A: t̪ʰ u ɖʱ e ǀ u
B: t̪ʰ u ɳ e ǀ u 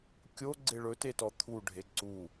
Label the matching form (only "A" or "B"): A